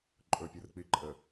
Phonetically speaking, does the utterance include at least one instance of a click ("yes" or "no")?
yes